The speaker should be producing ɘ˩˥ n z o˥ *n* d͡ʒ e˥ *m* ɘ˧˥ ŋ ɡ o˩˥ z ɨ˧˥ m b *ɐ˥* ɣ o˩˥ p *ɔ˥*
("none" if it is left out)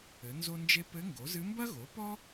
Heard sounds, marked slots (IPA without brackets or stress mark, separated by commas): n, p, ɐ˥, ɔ˥